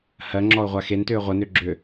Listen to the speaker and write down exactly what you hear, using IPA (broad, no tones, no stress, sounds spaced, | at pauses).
h ɜ ŋ͡ǁ ɔ ʊ̯ ʁʷ a x e n t ʏː ʁʷ ə n ʏ ɡ͡ǁ ʏː